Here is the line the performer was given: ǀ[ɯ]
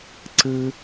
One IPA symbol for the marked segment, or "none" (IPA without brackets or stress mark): ɯ